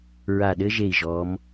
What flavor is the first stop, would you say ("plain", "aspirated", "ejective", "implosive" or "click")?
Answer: implosive